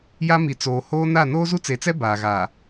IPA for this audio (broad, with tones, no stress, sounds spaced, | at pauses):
j a˦ m i˨ t͡s oː˨ h oː˦ n a˦˨ n oː˦ z u˦ t͡s e˨ t͡s ɛ˦ b aː˨ ɣ a˨